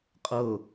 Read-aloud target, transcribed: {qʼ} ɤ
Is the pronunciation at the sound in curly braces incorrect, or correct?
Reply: correct